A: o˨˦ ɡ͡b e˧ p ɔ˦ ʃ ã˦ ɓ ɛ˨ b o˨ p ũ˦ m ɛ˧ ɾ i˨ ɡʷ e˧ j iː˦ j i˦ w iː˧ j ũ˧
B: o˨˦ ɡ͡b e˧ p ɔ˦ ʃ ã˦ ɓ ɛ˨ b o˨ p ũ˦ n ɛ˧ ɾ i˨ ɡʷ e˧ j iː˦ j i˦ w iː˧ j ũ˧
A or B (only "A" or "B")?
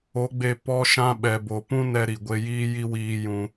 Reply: B